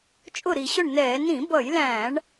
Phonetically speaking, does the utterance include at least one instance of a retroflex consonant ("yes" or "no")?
yes